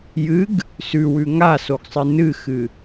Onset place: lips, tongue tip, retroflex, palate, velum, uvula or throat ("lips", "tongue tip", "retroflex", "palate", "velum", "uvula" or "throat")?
palate